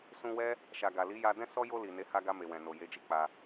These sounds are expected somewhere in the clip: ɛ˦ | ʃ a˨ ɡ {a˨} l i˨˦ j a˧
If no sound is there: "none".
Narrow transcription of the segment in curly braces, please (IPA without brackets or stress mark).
a˨